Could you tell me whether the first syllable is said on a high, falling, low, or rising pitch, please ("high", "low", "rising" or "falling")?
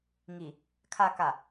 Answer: low